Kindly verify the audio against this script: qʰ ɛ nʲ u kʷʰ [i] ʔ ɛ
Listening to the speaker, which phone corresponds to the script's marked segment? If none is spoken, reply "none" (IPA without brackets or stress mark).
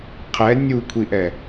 i